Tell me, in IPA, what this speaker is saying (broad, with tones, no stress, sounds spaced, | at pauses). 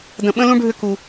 d ə̃˨ ɓ ə̃˧ l ũ˧ ɖʱ ʏ˧ k u˧